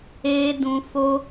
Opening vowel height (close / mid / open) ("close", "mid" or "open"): mid